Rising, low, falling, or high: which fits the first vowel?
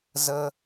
high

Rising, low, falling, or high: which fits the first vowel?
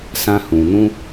high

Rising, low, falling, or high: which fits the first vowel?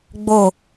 falling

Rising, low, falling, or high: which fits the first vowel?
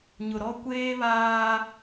low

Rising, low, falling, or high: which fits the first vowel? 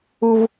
low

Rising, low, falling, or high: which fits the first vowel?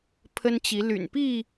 high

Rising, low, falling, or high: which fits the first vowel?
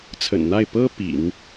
low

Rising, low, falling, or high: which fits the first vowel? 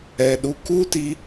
low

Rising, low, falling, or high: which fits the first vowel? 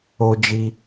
high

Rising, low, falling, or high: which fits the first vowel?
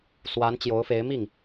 rising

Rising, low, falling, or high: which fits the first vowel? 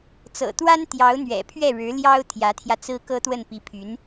low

